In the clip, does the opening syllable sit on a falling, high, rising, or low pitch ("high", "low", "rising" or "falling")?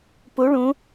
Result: rising